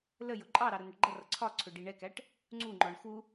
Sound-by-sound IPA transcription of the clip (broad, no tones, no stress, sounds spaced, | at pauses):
l ə j ʊ ǃʼ ɑ ɾ ɑ ɾ ə n̪ ə ʈ ɡ͡ǃ ʌ r ʌ ǀʰ ɒ ǀʰ ʊ ɖ i ɳ ɛ k æ ʈ | ŋ͡ǀ u ŋ͡ǃ ɔ ɳ x u